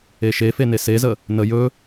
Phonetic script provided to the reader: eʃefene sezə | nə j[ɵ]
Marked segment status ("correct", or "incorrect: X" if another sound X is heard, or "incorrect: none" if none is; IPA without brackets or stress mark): correct